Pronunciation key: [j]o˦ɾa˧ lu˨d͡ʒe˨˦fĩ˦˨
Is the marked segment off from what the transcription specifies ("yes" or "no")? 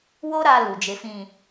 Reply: yes